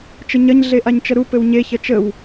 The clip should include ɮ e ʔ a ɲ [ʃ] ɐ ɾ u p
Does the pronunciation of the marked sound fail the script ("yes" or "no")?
yes